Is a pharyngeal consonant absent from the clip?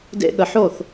no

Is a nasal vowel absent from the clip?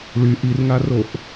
yes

